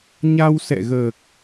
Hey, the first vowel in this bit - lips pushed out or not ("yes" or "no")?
no